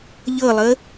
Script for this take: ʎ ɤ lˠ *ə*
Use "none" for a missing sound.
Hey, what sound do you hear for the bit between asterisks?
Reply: ə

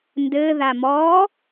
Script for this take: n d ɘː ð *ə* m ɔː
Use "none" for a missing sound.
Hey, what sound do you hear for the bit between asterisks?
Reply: a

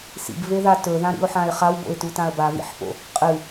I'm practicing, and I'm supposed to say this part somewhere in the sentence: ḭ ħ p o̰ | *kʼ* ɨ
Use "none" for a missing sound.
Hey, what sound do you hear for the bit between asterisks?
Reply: qʼ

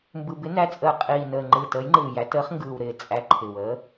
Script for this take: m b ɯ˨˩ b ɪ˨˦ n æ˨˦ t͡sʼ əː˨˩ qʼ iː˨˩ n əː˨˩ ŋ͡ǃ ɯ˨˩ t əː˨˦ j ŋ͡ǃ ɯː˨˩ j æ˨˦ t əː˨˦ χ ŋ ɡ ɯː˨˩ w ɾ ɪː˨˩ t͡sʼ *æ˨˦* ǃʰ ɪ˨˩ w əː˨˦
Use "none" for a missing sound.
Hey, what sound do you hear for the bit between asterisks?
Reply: æ˨˦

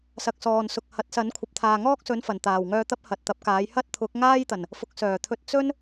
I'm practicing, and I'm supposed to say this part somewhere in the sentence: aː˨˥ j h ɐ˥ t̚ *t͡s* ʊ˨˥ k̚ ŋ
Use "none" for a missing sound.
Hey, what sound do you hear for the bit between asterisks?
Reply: t̪ʰ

